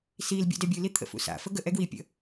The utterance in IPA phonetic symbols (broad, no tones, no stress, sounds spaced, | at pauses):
s i l bʲ ṵ d ɛ bʲ ɯ l i t̪ʰ ə̰ f ṵ s a̰ f ə ɡ ə ʔ ɛ ɡ w i pʲ ə̰